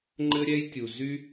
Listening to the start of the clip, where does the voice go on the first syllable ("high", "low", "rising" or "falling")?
high